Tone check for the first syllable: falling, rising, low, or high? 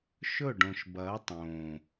falling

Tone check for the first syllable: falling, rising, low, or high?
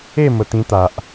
falling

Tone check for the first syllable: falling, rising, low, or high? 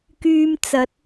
low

